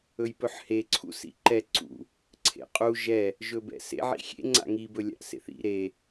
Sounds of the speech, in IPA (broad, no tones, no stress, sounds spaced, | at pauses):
ɵ j p ɵ ħ h e ǀʰ ṵ s ḭ ǃ ɛ ǀ ṵ | ǀʰ ḛ qʼ u ʒ ɛ | ʒ ɵ b ɛ̰ s ḛ ʕ ḭ xʲ ḛ ŋ͡ǀ a̰ ŋ i b ɵ lʲ a̰ ʔ s ḛ θ ḭ ɾ e